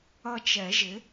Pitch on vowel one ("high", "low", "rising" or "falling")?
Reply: falling